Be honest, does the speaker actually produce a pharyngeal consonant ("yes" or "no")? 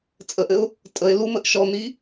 no